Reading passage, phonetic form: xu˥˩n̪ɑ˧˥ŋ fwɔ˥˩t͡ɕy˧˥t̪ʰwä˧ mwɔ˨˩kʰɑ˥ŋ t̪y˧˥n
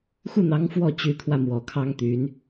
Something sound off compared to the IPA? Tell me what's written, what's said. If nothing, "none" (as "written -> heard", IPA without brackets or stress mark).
none